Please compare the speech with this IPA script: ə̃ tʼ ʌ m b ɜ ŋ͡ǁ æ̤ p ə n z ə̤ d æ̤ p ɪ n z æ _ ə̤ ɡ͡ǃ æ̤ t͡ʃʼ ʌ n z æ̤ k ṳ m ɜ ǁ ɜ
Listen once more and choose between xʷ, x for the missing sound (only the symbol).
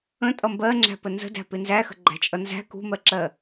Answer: x